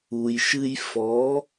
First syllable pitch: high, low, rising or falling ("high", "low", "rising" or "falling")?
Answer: low